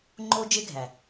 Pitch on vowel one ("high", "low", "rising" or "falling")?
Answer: high